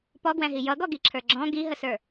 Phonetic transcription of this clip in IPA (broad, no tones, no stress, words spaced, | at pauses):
pɔɡwæ̃ɦi jʌɡɔɡiǁʰə˞ ɡ͡ǁɔ̃ ɡiɦəsə˞